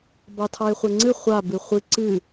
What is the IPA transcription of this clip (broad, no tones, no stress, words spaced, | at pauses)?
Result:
bɑtʰɑe̯χʷɛŋ͡ǀɨ χʷa bɨχʷɨ ǀɨ